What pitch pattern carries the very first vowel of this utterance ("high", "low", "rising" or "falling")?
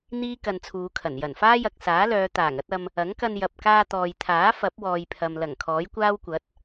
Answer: high